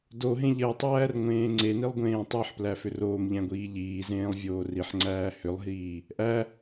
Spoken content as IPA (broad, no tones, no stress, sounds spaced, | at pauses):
d o ɦ ẽ ʎ ɜ tˤ æː r ŋʷ ẽː ŋ͡ǀ e n i lˠ ɡʷ ẽː tˤ e ħ p l æ f ʏ r oː m ʎ æ̃ ɡʷ iː ʎ iː z ẽː lˠ vʲ oː r i ħ ŋ͡ǀ æː h ʏ lˠ ɦ iː | ʔ æ